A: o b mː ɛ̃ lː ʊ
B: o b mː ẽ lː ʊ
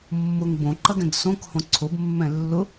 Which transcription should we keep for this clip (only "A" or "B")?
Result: A